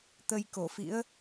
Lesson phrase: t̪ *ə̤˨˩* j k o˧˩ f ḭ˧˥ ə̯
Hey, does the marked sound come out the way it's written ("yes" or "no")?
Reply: no